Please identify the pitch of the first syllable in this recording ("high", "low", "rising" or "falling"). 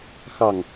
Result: falling